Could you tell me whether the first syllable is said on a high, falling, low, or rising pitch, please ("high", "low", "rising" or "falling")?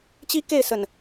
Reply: high